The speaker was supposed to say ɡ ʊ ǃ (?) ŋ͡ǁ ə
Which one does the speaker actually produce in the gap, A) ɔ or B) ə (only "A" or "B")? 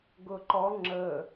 A